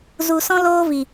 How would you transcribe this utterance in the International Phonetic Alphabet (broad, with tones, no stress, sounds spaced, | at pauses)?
z u˨ s ɔ̃˦ l oː˦ v i˨